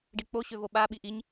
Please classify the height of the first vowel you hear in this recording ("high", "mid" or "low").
high